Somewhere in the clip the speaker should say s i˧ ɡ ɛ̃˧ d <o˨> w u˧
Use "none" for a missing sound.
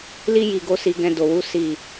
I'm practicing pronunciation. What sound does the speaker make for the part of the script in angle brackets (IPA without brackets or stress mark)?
o˨